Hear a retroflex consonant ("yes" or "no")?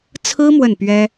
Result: no